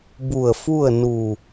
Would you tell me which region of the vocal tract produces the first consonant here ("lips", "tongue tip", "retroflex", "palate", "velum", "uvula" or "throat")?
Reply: lips